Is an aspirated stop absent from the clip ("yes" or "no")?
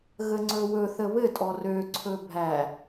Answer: no